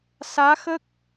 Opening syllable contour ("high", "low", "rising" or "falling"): rising